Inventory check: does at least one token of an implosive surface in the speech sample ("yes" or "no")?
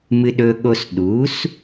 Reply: yes